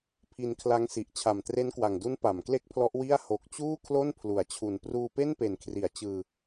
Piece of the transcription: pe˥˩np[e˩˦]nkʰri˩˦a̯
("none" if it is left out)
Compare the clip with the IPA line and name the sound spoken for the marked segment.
e˨˩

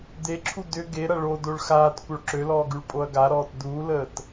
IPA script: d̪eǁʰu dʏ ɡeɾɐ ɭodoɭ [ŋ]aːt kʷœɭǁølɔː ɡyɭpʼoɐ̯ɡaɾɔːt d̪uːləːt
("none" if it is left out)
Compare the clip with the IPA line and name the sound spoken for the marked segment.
x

